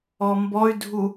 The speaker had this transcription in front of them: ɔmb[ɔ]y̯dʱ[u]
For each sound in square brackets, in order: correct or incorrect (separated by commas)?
correct, correct